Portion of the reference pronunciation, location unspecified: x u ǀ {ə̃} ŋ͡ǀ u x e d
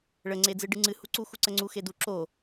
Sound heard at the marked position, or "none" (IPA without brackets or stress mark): ə